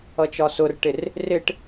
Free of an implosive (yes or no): yes